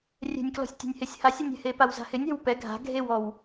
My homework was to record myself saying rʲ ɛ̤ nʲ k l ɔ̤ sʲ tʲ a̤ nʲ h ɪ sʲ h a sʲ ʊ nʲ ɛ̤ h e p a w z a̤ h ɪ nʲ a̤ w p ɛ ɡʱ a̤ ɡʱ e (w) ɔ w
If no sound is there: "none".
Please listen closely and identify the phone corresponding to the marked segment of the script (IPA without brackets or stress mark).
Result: w